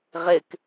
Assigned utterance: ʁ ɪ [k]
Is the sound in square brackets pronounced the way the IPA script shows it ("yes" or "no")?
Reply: yes